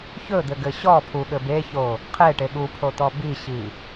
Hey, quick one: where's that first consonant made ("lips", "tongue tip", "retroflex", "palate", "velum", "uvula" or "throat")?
palate